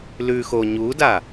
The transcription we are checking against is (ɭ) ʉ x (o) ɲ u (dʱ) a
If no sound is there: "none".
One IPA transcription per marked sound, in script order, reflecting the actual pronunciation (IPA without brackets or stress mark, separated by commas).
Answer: l, o, d